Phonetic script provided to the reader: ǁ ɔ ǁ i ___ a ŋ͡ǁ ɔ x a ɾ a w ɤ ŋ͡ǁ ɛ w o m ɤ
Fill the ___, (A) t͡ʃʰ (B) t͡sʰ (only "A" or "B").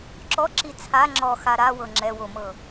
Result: B